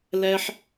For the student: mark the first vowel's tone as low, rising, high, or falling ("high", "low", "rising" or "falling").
high